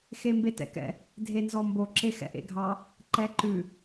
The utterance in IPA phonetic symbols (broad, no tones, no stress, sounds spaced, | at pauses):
x e m b e t ɛ̰ k ɛ̰ | dʱ e n z ɔ m b o ǁ e x ɛ̰ ʔ ḛ ɡʱ ɑ | ǃ ɛ ǃ ʉ